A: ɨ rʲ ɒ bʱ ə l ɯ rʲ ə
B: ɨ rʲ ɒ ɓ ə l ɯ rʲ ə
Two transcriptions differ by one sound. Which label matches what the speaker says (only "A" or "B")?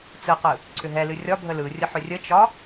A